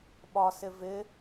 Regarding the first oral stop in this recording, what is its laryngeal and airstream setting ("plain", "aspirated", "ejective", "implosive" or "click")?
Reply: implosive